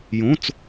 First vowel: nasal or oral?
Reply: nasal